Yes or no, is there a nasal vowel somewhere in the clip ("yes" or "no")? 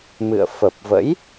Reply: no